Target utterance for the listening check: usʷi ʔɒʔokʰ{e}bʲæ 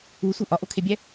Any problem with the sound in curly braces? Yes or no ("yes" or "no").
no